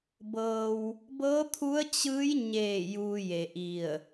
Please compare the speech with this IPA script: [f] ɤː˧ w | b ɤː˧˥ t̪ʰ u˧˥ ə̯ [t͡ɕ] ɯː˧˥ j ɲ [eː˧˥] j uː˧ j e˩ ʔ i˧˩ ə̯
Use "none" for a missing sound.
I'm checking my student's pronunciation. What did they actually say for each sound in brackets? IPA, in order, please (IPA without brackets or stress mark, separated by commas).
b, t͡ɕ, eː˧˩